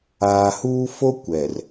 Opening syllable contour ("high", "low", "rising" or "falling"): low